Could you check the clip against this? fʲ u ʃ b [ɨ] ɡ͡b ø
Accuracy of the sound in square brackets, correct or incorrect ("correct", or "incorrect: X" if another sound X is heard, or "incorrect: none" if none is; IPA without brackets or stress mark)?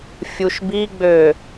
incorrect: i